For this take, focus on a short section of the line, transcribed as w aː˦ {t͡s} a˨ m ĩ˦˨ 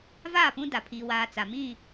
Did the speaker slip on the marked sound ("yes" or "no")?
no